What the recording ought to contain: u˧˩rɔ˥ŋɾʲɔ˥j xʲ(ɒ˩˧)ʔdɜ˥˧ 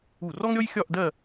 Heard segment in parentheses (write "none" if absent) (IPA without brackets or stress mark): ɒ˥˧